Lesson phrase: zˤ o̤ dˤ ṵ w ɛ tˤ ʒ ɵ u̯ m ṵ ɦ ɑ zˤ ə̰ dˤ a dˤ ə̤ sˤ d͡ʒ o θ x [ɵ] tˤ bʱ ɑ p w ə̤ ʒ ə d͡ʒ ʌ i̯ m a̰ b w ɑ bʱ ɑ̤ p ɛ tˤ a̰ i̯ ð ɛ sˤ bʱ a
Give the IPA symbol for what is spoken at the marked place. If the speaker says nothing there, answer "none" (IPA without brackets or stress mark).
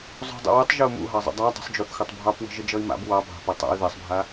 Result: ɵ